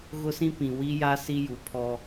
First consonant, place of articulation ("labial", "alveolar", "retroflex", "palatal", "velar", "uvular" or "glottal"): velar